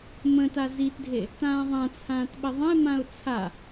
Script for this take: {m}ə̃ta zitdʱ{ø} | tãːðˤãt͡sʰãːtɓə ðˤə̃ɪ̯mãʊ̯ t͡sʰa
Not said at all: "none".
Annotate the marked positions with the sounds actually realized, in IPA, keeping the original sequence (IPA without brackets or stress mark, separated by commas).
m, e